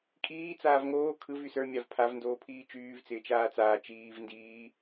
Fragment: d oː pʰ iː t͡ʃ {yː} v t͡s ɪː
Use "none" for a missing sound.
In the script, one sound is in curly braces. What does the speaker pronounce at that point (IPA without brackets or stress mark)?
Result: yː